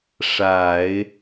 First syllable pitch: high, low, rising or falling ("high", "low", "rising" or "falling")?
low